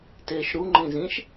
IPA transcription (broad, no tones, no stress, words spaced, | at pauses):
teʃɾu ŋ͡ǃĩzĩʃ